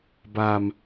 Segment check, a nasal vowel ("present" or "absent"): absent